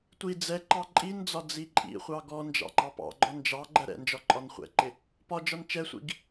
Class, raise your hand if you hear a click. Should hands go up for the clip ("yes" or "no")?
yes